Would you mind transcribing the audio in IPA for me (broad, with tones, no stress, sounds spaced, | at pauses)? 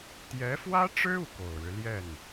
t̪ j ɛ˧˥ f w ä˥ ʈ͡ʂ ɻ̩˥ u˥˩ k o˨˩ ʊ̯ ɻ ɻ̩˦ l j ɛ˥˩ n